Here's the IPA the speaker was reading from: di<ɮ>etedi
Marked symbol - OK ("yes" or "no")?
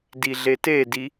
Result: yes